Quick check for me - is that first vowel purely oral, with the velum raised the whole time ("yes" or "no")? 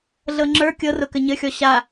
yes